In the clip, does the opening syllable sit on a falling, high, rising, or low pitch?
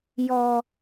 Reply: high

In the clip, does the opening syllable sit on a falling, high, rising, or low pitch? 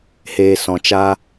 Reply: low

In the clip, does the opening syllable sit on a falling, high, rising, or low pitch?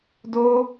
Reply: high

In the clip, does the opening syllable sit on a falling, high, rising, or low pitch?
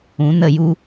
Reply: rising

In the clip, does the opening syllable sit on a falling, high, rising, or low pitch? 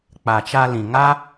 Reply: low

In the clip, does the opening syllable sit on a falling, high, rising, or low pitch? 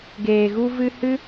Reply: low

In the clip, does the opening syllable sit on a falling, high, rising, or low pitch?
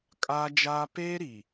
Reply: high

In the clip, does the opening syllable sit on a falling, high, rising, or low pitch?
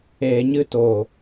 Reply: low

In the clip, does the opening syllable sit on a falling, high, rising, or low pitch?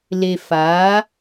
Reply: low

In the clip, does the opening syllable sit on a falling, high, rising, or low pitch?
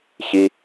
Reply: low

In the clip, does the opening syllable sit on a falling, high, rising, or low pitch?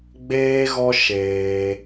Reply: high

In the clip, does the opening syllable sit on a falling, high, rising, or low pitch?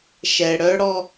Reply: low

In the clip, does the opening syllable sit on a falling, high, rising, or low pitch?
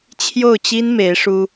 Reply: falling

